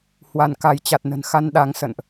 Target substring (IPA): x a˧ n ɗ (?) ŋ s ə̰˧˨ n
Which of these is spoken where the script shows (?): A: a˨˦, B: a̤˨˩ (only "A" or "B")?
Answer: A